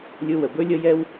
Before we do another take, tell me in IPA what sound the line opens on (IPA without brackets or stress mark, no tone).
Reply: lʲ